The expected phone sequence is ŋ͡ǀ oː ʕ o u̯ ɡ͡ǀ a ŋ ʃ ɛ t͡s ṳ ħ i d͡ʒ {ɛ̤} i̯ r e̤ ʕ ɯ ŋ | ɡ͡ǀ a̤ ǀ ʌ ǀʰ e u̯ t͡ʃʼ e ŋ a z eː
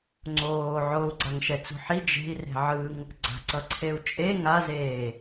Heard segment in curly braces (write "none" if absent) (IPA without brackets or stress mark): e̤